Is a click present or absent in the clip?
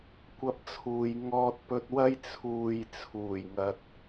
absent